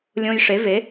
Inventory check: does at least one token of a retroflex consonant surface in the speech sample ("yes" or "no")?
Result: yes